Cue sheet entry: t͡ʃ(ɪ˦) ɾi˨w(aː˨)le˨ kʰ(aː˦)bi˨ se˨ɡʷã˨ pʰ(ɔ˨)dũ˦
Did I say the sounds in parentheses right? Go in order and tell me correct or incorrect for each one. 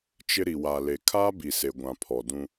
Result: correct, correct, correct, correct

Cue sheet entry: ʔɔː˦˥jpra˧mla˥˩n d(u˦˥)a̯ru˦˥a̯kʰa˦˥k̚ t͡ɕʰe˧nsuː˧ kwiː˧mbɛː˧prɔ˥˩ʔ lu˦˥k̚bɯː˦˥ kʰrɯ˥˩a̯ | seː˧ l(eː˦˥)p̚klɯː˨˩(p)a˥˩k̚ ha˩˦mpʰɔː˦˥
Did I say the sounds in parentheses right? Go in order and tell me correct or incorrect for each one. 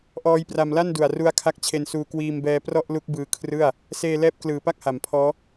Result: incorrect, incorrect, correct

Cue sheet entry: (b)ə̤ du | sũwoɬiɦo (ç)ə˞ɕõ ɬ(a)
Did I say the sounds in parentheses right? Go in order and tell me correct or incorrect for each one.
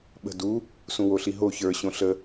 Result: incorrect, correct, incorrect

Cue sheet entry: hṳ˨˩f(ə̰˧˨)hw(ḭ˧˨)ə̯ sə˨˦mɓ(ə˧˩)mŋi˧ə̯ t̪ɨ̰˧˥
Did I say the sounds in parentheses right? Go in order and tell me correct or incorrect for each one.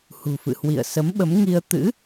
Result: incorrect, correct, incorrect

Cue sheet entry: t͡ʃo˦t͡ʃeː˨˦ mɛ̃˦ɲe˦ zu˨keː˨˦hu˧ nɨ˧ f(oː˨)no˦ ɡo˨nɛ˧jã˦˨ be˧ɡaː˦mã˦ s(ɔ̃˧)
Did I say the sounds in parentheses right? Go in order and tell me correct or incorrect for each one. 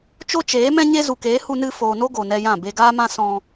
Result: correct, correct

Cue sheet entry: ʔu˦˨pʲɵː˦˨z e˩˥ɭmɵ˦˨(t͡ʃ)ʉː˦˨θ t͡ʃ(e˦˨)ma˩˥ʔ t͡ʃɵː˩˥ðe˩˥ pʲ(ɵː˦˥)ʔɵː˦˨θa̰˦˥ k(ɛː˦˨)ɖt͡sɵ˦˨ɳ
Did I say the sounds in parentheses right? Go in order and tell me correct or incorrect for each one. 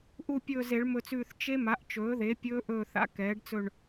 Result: incorrect, incorrect, correct, incorrect

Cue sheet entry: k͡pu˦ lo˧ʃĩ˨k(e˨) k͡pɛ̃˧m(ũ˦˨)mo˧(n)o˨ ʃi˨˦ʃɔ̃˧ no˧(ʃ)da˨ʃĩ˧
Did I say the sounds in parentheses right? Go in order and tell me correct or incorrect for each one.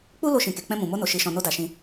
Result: correct, incorrect, correct, incorrect

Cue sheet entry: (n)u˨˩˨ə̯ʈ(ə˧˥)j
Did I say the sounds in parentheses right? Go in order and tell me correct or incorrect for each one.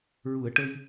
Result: incorrect, incorrect

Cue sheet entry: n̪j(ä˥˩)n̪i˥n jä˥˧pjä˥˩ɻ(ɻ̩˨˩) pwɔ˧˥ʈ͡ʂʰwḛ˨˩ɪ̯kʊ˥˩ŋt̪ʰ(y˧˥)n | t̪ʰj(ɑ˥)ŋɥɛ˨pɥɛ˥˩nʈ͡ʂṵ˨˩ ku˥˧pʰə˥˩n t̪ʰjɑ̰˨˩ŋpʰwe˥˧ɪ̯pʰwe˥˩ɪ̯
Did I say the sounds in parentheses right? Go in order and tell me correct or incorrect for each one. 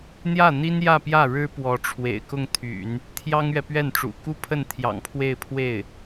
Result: correct, incorrect, incorrect, correct

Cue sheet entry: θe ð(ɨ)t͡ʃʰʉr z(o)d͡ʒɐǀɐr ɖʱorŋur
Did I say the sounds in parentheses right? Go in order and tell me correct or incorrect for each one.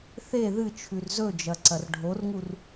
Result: correct, incorrect

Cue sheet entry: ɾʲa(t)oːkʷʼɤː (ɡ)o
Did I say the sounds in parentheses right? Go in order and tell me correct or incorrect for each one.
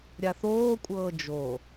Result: incorrect, incorrect

